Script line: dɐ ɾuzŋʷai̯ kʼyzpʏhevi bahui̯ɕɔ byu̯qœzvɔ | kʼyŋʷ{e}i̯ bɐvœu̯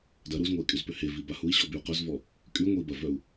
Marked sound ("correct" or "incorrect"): correct